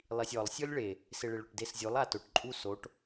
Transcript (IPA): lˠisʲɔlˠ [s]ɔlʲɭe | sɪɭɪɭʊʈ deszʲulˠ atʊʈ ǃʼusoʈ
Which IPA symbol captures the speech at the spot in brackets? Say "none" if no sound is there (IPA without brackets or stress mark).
sʲ